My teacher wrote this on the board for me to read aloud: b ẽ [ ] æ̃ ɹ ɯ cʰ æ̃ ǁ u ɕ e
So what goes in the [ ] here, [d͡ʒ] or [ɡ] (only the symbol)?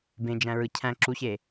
d͡ʒ